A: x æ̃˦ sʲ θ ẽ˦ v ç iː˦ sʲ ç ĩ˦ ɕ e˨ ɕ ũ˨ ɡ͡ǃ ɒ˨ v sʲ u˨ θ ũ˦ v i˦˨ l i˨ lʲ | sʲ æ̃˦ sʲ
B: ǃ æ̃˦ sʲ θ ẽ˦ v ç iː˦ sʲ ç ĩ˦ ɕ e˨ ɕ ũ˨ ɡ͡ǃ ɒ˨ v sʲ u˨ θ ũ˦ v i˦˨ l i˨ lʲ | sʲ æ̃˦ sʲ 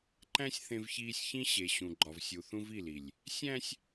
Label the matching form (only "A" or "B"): B